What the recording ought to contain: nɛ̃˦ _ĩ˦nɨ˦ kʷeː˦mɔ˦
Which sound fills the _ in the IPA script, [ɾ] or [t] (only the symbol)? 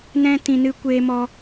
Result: t